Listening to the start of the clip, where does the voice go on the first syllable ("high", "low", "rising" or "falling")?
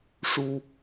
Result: high